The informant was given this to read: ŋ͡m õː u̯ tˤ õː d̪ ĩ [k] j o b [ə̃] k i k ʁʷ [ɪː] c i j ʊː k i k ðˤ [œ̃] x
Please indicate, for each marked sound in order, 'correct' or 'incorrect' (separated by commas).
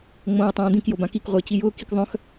correct, incorrect, correct, correct